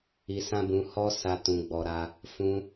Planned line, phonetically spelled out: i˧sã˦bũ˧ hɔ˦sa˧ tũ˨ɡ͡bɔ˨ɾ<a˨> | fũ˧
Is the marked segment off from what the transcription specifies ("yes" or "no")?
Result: yes